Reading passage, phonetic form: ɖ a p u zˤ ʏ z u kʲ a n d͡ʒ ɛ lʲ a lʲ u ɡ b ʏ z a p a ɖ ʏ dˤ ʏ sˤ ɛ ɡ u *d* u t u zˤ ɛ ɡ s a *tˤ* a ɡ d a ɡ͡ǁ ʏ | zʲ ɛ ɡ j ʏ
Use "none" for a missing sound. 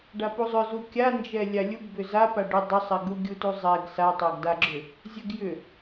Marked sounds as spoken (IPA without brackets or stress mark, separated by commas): ɡʲ, tˤ